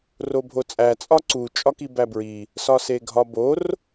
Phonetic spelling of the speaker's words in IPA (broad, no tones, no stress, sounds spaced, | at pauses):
r o bʱ o t͡sʼ æ t͡sʼ ɒ ǀ u t͡ʃʼ ɒ k i b æ b ɹ i | s ɒ s e ɡʱ ɒ b o r